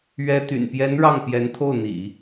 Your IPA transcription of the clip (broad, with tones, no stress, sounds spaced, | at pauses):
ɥ ɛ˥ t̪ y̰˨˩ n p j ɛ˧˥ n ɻ ɑ˥˩ ŋ p j ɛ˧˥ n t̪ʰ o˥˩ ʊ̯ n̪ ḭ˨˩˦